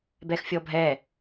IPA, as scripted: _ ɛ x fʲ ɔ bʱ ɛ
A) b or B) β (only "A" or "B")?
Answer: A